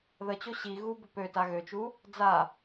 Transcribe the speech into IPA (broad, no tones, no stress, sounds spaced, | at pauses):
ð ə t͡ɕ o ɕ i ɣ u b ʊ p ø t a ɣ ø t͡ʃ u | d͡z a